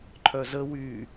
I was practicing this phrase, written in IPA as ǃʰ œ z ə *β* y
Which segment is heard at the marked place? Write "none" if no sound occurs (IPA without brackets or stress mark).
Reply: w